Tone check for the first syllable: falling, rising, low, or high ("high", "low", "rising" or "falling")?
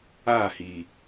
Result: falling